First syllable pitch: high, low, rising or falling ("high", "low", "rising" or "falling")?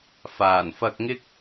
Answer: low